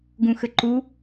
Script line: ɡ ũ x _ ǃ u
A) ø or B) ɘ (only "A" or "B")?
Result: B